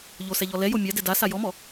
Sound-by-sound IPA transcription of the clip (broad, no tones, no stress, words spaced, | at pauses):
ʎosɛʎɔ lɛjo mʲadɛ dasa jɔmɔ